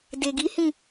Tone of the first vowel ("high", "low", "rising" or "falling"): low